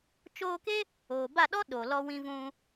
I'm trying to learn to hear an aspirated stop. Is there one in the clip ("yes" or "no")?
no